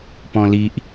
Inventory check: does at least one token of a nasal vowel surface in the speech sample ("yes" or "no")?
yes